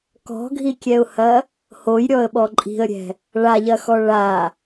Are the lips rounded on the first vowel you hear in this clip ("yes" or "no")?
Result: yes